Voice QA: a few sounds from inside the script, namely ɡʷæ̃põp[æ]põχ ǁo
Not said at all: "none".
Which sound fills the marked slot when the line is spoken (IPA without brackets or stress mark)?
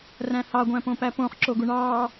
æ